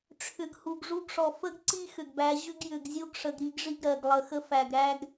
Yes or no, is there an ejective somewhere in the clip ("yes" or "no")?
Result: no